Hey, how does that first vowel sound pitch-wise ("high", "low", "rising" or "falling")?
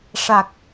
low